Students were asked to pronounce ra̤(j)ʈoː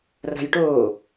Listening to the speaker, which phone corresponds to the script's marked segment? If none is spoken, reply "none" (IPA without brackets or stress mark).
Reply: j